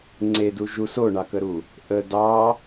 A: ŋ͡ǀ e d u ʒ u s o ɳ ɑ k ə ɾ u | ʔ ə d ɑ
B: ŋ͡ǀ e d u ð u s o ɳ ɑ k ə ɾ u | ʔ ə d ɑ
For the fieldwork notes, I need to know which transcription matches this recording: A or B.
A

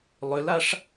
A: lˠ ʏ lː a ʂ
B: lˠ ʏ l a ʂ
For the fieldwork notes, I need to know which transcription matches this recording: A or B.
B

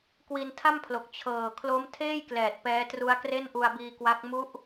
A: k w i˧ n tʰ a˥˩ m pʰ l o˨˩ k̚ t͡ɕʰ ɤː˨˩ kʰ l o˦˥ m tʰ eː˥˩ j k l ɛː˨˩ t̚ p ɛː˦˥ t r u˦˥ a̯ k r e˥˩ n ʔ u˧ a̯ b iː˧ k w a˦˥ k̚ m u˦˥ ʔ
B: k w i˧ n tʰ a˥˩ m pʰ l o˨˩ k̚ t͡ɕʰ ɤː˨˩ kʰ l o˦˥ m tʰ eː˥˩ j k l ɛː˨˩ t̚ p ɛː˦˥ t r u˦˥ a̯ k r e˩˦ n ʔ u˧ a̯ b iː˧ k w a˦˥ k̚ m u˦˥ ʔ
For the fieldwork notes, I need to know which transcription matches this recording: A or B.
A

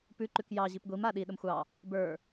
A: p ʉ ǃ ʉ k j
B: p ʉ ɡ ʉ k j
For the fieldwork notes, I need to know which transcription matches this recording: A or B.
A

